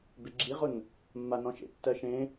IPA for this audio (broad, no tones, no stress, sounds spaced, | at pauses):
b e ɡ͡ǁ i ʁ ʊ n | mː a n ɔ̃ ʃ ḛ tː ɜ ʃ ẽ